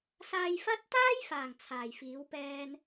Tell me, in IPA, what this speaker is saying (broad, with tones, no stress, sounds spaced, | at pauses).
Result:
s aː˧ j f ɐ˥ t̚ t̪ aː˥ j f aː˨˩ ŋ t͡sʰ aː˨˩ j f iː˨˥ w p ɛː˧ n